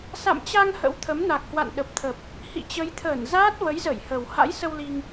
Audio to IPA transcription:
s a̰˧˨ m t͡ɕ a˧ ŋ h ə̰˧˥ w t̪ʰ ə˨˦ m n a˨˩ k̚ h w a̰˧˨ n ɗ ə˨˩ p̚ t̪ʰ ə˨˩ p̚ | h ḭ˧˨ t͡ɕ ə˨˦ j t̪ʰ əː˧˩ n z aː˦˥ t̚ v ə˨˦ j z ə˧˩ j h ə˨˩ w h a̰˧˥ j s ə˧ w l i˧ ŋ

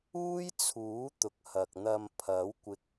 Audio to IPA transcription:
uː˥ j t͡sʰ uː˨˥ t̪ ʊ˨ k̚ h ɐ˨ k̚ n̪ ɐ˧ m pʰ ɐ˨˥ w kʷ ɪ˧ k̚

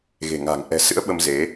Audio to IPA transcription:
ɣ e̤˨˩ ŋ a̤˨˩ ŋ ʔ ɛ̤˨˩ s ɨ̰˧˥ ə̯ ɓ ə˧ m z e˨˦

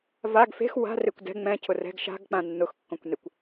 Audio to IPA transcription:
v a ɡ f e̤ x w a̤ r e kʷ d ɛ̤ ŋ͡m ɛ̃ cʰ ʊ r ɛ̤ ɡ ʃ a̤ ɡ k͡p ã nː ʊ x kː õ kʷ n e kʷ

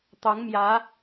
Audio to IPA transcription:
t̪ ɑ˨˦ ŋ m j ä˨˦

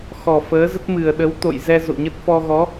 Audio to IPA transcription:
x ɔ˨˩ f əː˨˦ z ə˦˥ t̚ m ɨ˨˩ ə̯ ɗ ə˨˦ w t̪ o̰˧˨ j z ɛ˧ z o̰˧˨ ɲ ə˦˥ t̚ f ɔ˧ ɣ ɔ˨˦

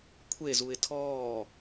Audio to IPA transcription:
kʷʰ e z u ɪ̯ tʰ ɔː

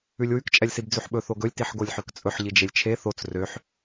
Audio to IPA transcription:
ʉ lʲ w ʉ k t͡ʃʼ ɛ lʲ s i b d͡z ʉ ħ ɓ ɵ θ o ɡ ɵ lʲ t i ħ ɡ o lʲ ħ ø k t͡sʼ ɵ ħ ʎ i d͡ʒ e lʲ t͡ʃʰ e θ o t͡s r ø ħ

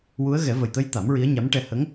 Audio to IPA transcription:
w u˧˥ ə̯ ɣ ɛ˨˩˦ v ə˨˩ j t̪ ə˧ j t̪ a˨˩˦ m ɹ i˧˥ ə̯ ɲ a˧˥ m ʈ ɛ˧ h ə˧˥ ŋ

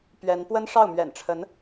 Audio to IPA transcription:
p ɥ ɛ˧˥ n p w ə˥ n ʂ ɑ˥˩ ʊ̯ m ɥ ɛ̰˨˩ n ʈ͡ʂʰ ə˧˥ n

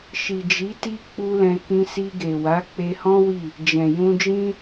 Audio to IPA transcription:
ʃ i˨ d͡ʒ i˨˦ t i˦ k͡p u˦ l ɛ̃˧ k ĩ˧ s i˧ ɡ e˨ w a˨˦ k͡p e˧ h ɔ̃˦ w i˦˨ | d͡ʒ ɛ̃˨ j ũ˧ d͡ʒ ĩ˦

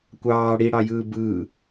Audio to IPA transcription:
kʷ ɑː ɽ i ɽ ɑ j ɯː b ɯː

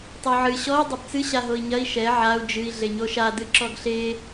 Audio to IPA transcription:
tˤ o ʕ ɨ ɕ ɔ i̯ dˤ ɐ b t͡s ɨ ɕ a ɦ o i̯ ɲ ɐ i̯ ʃ ɛ ʕ a u̯ d͡ʒ ɨ i̯ ɮ e ɲ o ʃ a d ɨ ǁ ɔ ɡ ɬ e

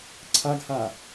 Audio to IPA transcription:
ǀʰ a ɡ h a

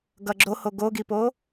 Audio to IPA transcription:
ɡ ʌ ɡ͡ǁ o h o ɡ o ɡ i p o

